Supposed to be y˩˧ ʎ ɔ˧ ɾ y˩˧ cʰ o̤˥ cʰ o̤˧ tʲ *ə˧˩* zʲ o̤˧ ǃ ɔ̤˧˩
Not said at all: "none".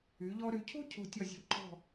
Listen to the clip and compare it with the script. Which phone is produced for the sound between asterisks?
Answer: ʌ˧˩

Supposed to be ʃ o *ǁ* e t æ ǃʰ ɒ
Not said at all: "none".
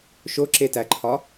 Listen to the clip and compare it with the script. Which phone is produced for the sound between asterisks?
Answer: ǁ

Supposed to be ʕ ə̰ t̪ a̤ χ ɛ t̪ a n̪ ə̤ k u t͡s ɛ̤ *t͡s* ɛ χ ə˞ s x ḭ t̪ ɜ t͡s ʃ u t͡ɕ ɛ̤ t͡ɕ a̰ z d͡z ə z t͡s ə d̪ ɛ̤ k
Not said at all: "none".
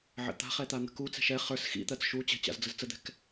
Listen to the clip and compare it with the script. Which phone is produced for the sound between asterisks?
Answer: ʃ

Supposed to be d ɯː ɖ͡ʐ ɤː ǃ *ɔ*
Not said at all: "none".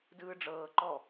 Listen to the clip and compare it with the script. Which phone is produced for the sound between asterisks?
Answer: ɔ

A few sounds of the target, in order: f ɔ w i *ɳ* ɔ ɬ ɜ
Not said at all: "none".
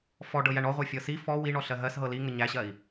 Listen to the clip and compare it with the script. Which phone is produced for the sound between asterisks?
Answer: ɳ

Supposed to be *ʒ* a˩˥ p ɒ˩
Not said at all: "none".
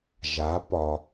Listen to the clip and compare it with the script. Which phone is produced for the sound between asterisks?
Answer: ʒ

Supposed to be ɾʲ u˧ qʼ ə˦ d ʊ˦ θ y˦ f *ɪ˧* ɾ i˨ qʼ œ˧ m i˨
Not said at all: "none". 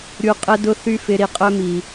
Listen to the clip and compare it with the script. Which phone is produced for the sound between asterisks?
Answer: ɪ˧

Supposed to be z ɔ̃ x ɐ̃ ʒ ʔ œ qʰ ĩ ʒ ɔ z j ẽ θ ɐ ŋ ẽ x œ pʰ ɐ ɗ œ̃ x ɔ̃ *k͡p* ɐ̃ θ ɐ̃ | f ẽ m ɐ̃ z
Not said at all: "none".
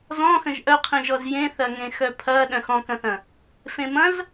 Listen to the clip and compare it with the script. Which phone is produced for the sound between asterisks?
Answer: k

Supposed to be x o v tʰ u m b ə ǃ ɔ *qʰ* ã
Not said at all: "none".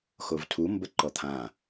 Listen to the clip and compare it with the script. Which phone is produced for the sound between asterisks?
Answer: t̪ʰ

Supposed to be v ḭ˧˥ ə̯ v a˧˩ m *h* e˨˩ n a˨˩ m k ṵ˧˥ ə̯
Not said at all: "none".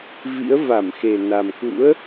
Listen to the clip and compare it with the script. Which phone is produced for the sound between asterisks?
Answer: x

